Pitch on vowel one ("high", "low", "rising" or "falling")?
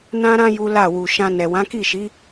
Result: high